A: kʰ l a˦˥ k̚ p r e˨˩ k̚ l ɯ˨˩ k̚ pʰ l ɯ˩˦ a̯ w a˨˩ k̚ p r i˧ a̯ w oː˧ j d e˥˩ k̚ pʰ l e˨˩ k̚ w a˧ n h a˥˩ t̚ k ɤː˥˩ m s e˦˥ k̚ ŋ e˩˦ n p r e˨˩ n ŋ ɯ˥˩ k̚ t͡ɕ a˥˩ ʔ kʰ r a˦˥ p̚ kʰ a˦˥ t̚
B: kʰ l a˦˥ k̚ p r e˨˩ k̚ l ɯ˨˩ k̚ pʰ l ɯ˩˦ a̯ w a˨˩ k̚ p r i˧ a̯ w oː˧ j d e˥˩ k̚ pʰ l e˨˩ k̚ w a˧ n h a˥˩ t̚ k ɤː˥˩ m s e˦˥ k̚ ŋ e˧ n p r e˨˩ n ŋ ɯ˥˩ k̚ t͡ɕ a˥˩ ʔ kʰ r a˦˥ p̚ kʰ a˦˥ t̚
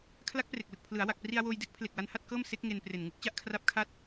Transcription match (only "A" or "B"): B